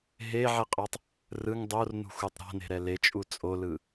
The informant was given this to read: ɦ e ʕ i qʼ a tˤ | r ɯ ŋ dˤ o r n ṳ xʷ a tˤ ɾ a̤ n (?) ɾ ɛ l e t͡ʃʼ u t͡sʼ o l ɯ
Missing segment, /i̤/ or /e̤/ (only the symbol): e̤